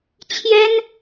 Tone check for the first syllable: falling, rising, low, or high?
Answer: high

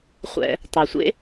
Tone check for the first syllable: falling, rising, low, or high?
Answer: high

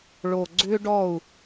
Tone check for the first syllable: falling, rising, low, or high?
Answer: low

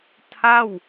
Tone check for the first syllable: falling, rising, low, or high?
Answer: falling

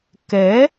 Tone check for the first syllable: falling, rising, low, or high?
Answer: rising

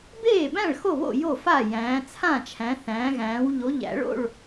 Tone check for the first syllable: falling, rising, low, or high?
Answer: falling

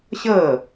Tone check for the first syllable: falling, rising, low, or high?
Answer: falling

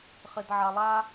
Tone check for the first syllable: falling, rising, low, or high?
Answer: low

